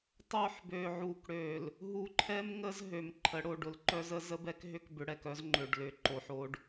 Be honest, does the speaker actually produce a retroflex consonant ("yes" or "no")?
yes